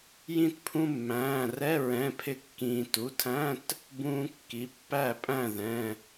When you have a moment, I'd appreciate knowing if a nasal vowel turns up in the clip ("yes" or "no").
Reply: yes